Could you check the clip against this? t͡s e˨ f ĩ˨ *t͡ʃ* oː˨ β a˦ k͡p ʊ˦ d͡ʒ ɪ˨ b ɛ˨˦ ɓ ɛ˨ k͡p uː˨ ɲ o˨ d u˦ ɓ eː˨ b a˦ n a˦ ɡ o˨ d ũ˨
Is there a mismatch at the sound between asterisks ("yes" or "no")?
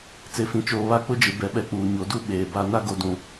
no